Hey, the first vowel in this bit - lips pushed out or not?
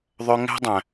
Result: yes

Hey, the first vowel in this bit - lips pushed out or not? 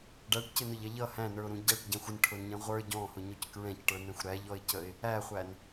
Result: no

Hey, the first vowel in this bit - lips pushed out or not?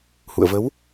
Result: yes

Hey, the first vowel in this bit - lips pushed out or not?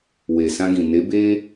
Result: no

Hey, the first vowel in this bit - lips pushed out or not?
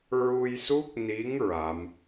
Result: yes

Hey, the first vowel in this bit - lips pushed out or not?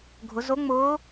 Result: yes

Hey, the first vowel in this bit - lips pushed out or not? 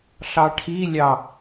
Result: no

